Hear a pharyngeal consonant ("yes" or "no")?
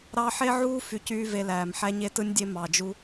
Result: yes